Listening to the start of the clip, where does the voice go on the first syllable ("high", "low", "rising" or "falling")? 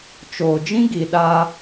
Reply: low